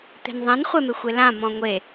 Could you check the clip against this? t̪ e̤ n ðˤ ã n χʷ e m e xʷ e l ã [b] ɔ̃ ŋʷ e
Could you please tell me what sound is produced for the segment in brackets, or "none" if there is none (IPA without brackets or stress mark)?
m